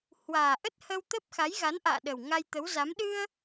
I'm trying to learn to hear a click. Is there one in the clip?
no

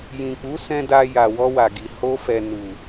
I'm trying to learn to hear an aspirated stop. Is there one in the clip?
no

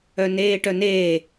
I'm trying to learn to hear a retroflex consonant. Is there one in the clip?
yes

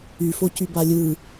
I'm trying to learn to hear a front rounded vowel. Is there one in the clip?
yes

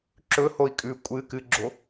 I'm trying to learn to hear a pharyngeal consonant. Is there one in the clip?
no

